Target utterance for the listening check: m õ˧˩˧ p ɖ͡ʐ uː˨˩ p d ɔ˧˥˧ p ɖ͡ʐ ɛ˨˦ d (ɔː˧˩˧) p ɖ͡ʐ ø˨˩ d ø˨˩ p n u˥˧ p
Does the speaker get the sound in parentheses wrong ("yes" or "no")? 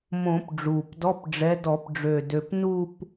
yes